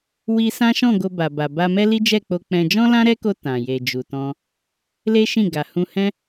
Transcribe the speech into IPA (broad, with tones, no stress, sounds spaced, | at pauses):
w i˧ s ã˦ ʃ ɔ̃˦˨ ɡ o˧ b a˨ b a˨ b a˧ m ɛ˦ l i˦ d͡ʒ ɛ˦˨ k͡p o˧ k͡p ɛ̃˧ d͡ʒ ɔ̃˦ l ã˦ ɾ ɛ˦ k o˧ t ã˨ j e˨ d͡ʒ u˨ t ɔ̃˧ | l e˦ ʃ ĩ˦˨ ɡ a˨ h ũ˧ h ɛ̃˦